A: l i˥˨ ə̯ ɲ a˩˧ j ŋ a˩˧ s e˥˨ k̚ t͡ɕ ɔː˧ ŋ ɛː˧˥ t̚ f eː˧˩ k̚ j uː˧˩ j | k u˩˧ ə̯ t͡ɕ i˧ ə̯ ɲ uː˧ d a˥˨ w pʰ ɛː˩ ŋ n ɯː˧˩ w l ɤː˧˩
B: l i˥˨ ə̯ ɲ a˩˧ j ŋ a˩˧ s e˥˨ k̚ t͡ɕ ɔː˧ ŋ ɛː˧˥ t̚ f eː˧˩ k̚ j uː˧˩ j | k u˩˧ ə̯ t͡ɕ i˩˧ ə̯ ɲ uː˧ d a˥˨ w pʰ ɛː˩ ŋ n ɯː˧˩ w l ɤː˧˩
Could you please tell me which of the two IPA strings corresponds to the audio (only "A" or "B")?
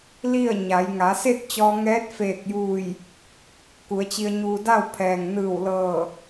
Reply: A